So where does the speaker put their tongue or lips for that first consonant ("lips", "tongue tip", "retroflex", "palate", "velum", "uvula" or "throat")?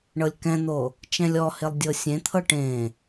retroflex